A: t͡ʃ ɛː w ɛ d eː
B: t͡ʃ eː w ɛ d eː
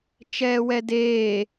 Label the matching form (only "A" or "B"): A